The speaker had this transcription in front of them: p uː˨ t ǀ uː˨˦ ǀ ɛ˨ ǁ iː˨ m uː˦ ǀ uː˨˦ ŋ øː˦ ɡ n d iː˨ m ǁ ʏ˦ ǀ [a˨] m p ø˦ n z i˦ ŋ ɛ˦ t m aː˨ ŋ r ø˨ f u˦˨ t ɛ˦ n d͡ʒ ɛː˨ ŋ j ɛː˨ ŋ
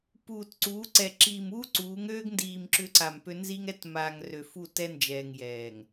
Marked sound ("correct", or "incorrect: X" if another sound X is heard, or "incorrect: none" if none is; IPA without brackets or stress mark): correct